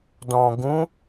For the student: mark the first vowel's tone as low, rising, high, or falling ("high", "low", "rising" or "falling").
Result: low